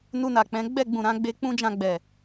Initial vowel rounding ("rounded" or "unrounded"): rounded